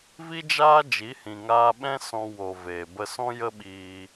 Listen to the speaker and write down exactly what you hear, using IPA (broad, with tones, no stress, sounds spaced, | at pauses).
v i˦ d͡ʒ aː˦ d͡ʒ i˨˦ h ĩ˨ ŋ aː˧ ɓ ɛ̃˦ s ɔ̃˧ w o˨ v eː˨ b ə˧ s ɔ̃˦ j ə˦ ɓ iː˧